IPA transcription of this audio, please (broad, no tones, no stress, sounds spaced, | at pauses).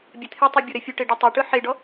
bʲ ɛ t̪ʰ e tˤ i bʲ o ɾ ɛ fʲ u ʈ e ɖ o tˤ e ʈ ɯ ħ e ɖ ɔ